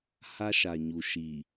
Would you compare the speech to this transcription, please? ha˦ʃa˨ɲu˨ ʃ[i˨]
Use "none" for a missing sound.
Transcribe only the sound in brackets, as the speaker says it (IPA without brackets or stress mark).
iː˨